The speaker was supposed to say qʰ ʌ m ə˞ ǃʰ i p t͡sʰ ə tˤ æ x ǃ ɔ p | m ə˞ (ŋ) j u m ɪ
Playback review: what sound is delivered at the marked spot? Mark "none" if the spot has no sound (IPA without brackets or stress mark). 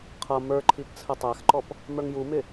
ŋ